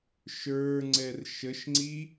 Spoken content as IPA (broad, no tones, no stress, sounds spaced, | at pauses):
ʃ ə˞ ŋ͡ǀ ɛ r ʃ ə ʃ ŋ͡ǀ i